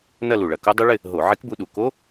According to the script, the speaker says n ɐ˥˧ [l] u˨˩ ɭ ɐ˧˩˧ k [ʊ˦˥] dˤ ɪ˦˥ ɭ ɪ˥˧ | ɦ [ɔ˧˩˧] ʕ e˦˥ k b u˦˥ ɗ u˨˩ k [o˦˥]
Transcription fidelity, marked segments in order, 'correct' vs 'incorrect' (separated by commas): correct, correct, incorrect, correct